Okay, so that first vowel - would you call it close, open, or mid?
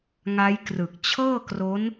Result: open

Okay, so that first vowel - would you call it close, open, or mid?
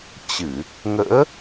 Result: close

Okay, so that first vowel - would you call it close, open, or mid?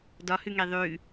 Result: open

